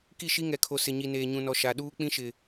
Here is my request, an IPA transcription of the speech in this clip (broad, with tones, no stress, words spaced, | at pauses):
ki˦˨ʃi˦ ŋɛ˨kʰo˨ sɪ˨ɲi˨ neː˨ɲũ˨nɔ˨ ʃa˨ɗuː˦ k͡pĩ˦ʃɪ˨